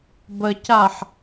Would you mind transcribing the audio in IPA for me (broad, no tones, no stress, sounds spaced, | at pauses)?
b ə c a ħ